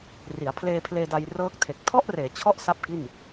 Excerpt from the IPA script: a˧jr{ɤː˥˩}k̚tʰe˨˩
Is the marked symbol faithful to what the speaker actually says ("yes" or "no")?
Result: no